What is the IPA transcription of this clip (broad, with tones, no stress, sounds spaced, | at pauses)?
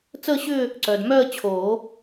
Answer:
t͡s əː˥˧ ɕ ʏː˥˧ | ǀ œ˨ d m œ˥˧ ə̯ t͡ɕʰ oː˨˩˦